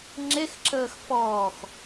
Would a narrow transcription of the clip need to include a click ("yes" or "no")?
yes